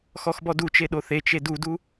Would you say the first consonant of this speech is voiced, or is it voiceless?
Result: voiceless